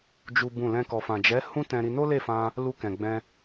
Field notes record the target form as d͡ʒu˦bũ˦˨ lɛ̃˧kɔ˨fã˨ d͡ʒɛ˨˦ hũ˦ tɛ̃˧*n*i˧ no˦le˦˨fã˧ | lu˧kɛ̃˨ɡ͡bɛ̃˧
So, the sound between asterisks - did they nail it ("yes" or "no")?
no